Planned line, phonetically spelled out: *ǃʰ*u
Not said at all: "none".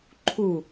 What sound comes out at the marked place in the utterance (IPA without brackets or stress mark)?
ǃʰ